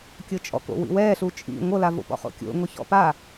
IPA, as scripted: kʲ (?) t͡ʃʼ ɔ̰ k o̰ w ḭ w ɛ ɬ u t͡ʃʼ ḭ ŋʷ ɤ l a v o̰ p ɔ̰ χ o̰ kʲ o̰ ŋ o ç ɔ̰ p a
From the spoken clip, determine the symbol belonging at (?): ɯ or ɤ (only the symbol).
ɤ